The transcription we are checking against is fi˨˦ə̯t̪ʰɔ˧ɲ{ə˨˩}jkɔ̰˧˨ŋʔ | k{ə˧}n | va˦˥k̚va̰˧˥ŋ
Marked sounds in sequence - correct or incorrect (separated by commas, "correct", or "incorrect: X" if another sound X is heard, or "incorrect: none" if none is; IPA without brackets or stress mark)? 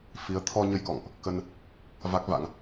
incorrect: ə˧, correct